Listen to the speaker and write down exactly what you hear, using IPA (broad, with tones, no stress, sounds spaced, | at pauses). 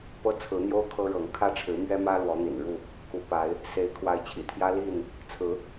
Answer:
p ɤ˦ t͡sʰ ɹ̩˨˦ n̪ j o˦ ʊ̯ kʰ ɤ˦ ɻ ɤ˨˦ ŋ kʰ ä˦ ʈ͡ʂʰ ɻ̩˨˦ m ɥ ɛ˦ m ä˦ l w ɔ˨˦ n̪ ḭ˨˩ n ɻ u˥˨ | k u˨˦ p a˨˦ ɪ̯ | s e˨˦ ɪ̯ kʰ w a˨˦ ɪ̯ t͡ɕʰ ḭ˨˩ t̪ʰ j ä˦ l i˥˨ n | t͡sʰ ɹ̩˨˦